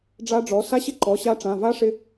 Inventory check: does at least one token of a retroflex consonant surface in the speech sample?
yes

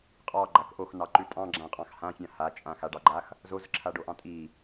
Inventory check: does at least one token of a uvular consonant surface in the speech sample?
yes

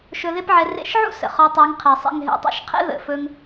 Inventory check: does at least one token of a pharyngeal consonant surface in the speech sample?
yes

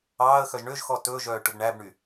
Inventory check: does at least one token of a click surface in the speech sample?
no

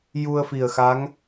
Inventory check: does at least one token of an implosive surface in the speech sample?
no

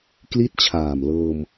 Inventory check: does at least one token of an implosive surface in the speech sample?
no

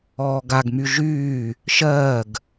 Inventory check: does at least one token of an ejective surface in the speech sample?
no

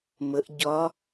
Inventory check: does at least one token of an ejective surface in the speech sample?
no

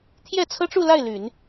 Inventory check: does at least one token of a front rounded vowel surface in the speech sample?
yes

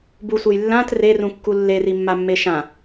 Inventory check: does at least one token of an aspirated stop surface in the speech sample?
no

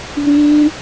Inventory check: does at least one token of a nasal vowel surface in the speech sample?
yes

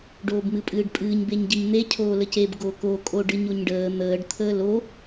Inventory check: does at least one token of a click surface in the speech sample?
no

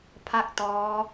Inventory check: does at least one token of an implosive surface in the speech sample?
no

